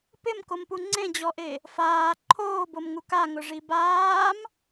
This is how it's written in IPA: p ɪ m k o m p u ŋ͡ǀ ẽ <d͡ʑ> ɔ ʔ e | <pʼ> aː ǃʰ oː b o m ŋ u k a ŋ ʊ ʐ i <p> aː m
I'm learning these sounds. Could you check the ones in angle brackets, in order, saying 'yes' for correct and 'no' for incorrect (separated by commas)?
yes, no, no